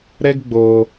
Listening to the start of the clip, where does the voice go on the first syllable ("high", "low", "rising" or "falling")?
high